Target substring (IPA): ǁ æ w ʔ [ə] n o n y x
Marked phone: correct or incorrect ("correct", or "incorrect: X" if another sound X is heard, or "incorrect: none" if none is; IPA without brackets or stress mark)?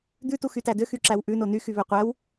incorrect: ʉ